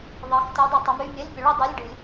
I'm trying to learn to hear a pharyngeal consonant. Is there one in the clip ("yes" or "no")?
no